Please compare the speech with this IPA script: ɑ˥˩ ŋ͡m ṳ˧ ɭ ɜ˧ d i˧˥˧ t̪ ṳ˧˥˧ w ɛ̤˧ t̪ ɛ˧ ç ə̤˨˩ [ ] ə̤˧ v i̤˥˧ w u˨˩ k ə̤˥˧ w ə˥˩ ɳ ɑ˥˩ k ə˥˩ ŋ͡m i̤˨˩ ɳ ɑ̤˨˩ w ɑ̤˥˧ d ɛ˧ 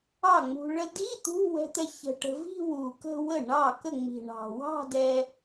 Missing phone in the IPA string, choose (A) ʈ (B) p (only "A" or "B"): A